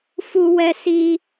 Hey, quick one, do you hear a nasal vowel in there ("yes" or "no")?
no